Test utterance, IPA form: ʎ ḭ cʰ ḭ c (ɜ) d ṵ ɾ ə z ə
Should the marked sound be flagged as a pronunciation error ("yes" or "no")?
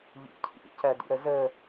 no